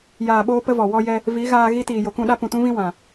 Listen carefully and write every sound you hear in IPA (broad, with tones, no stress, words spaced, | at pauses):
jaː˨ɓoː˧ pə˦vɔ˨ wɔ˧jɛ˧ | vi˨˦ɣaː˧ ɣi˧tiː˨ jo˨kũ˦˨ɗa˦ pũ˨tũ˦vĩ˦ wã˨